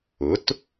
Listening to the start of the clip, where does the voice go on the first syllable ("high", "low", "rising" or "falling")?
rising